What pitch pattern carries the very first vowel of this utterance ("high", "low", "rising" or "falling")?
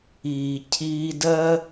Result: low